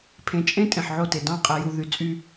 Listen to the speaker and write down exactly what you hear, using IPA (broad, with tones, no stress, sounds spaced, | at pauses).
pʰ ẽ˨ t͡ʃʼ ẽ˦ tʼ ẽ˨ ħ ʕ o˦˨ t e˨ d ɑ̃˦˨ qʼ e˨ j u˨ ð y˨ t͡sʼ y˦